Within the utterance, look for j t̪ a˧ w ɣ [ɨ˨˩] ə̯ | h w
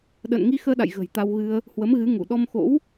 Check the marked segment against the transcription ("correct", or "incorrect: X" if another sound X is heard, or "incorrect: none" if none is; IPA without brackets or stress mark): incorrect: ɨ˧